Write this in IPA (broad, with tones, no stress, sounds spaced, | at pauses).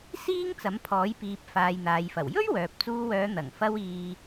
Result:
s iː˥ ŋ t͡s ɐ˨˥ m pʰ ɔː˨˥ j p iː˨ p̚ f aː˨ j n̪ aː˨ j f ɐ˨˩ w j ɵ˥ ɥ w œː˨ p̚ t͡s uː˧ w œː˨˧ n̪ ɐ˨˩ ŋ f ɐ˧ w iː˨